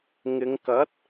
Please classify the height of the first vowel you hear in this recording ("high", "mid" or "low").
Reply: high